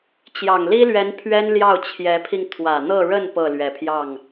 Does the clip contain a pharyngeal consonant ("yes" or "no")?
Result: no